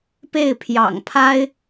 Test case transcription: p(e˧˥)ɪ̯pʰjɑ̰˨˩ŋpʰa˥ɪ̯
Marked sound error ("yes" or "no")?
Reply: yes